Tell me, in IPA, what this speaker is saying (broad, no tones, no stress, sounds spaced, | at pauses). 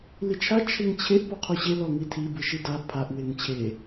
l i t͡ʃʰ a t͡ʃʰ e ŋ t͡ɕʰ e ʔ p ɔ qʰ o ɕ e l ɔ ŋ i tʰ i b ɯ ʃ i d a pʰ a ʔ w e ŋ t͡ɕʰ e